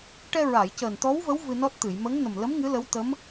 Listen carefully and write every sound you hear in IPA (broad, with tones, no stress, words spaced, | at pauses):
ʈɛ˧ɹa˨˩˨jcəː˨˩n t̪ɔ˧˥wvə˧˥w vɨ˧nɔ˦˥t̚t̪ɨ˨˩˨j mə˧˥ŋ nə˨˩mlə˧˥m ŋɨ˧˥lə˧˥wt̪ə˧˥m